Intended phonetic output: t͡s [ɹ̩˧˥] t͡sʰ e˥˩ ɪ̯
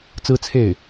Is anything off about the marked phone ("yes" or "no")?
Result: yes